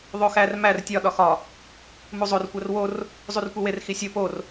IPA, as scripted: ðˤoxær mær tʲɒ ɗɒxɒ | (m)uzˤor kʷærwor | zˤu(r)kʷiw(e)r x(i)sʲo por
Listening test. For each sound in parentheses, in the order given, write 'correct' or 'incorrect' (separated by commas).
correct, correct, correct, correct